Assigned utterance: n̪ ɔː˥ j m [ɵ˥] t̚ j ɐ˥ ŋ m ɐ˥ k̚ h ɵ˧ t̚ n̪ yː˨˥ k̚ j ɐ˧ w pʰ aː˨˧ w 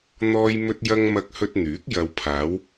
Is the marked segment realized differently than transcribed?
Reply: no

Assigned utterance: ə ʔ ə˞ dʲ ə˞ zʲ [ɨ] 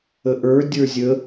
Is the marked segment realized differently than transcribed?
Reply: yes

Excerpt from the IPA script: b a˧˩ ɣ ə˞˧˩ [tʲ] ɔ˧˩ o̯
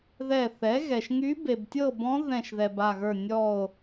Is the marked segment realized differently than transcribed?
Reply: yes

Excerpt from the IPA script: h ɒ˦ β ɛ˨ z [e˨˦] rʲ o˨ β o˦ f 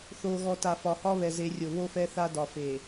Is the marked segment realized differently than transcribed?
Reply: no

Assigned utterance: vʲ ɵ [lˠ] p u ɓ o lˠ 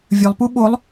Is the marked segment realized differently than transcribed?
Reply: no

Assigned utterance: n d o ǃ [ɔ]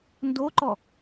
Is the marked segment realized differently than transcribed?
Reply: no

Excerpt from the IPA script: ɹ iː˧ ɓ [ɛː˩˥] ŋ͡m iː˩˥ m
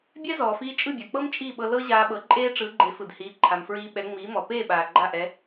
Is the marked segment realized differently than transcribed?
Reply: yes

